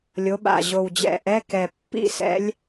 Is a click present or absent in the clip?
absent